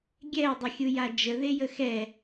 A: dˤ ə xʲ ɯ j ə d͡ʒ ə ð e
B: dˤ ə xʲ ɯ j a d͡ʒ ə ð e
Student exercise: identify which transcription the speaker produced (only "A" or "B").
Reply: B